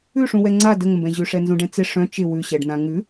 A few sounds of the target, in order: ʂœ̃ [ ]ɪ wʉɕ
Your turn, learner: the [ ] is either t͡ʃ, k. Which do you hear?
t͡ʃ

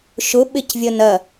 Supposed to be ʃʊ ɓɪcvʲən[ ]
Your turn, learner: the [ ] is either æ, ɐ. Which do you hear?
ɐ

